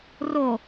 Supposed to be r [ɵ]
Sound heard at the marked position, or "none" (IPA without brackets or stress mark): o